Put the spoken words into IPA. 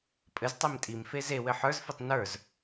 pʼ ɘ z tˤ e m tʼ i m f e z e w ɘ ħ ə˞ z f i tˤ n ə˞ z

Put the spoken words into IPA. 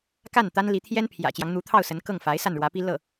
k a˥˩ n t̪ a˥ n l i˧˥ t̪ʰ j ɛ˥ n pʰ j ä̰˨˩ t͡ɕ j ɑ˦ ŋ n̪ u˧˥ t̪ʰ ɑ˥˩ ʊ̯ s ə˧˥ n k ɤ˥˩ ŋ f a˧˥ ɪ̯ s a˥˩ n ɻ w ä˧˥ p i˥ l ɤ˥˩

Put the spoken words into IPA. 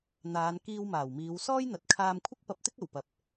n̪ aː˨˧ n k iː˧ w m aː˨˩ w m iː˨˧ w s ɔː˥ j n̪ ɐ˨ t̚ kʰ aː˧ m kʷʰ ɪ˥ k̚ p ɐ˧ p̚ t̪ ɪ˥ k̚ ɐ˨˩ w p ɐ˨ p̚

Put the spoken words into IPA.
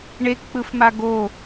ɳ e k k͡p ɯ f m a ɡ o

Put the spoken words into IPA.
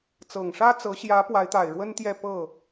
t͡s ɤ˨˩ ŋ ʂ ä˥ t͡s ɤ˧˥ ɕ j ä˧˥ p w a˧˥ ɪ̯ t̪ a˨˩ ɪ̯ ɻ w ə˥ n t̪ j ɛ˥˧ p ɤ˥˩

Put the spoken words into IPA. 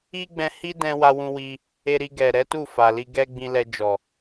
i˦ ɡ͡b ɛ̃˧ h i˦ d ɛ̃˧ w a˧ w ũ˧ w i˧ | e˧ ɾ i˧ ɡ ɛ˨ ɾ ɛ˨˦ t u˦˨ f a˨ l i˧ ɡ ɛ˧ ɡ͡b ĩ˧ l ɛ˧ d͡ʒ ɔ˨

